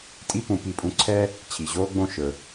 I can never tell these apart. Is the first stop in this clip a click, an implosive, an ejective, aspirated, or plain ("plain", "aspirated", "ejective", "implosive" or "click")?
ejective